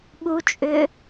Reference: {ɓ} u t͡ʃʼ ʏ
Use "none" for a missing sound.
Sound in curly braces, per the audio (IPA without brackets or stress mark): ɓ